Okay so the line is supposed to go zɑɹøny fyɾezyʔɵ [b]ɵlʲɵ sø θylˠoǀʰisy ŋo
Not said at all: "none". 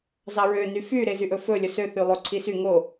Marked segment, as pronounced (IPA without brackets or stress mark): f